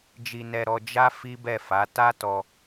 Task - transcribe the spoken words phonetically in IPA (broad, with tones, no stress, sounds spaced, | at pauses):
d͡ʒ i˧ n ɛ˧ ɾ ɔ˧ d͡ʒ a˦ f i˦ b ɛ˦˨ f a˨˦ t a˦ t ɔ˧